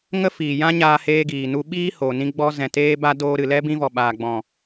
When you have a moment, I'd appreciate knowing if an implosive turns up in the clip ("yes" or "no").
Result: yes